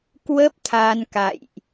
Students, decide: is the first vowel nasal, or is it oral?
oral